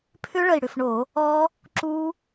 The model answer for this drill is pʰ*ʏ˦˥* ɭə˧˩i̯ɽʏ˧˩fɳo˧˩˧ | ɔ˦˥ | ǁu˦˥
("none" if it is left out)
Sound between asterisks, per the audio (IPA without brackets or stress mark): ʏ˦˥